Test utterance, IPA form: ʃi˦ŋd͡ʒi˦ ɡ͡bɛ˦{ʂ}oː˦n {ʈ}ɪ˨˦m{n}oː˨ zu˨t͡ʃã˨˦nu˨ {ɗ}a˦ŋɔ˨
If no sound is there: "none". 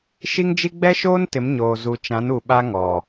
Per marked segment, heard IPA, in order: ʃ, t, ɲ, ɓ

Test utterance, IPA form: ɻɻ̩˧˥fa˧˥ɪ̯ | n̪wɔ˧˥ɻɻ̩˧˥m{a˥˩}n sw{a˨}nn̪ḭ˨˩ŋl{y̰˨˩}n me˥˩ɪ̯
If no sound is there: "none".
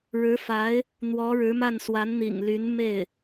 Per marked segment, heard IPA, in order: a˥˩, a˧˥, y˧˥

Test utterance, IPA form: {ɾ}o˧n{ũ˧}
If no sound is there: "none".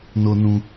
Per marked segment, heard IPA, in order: n, ũ˧

